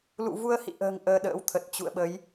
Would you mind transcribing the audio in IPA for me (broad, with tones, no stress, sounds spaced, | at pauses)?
l ṵ˧˨ v u˧ ə̯ h ḭ˧˨ ʔ ə̤ː˨˩ ŋ ʔ əː˧ ɗ ə̰ː˧˥ w t̪ʰ ə˨˩ t̚ t͡ɕ ṵ˧˨ ə̯ ɓ ə˨˦ j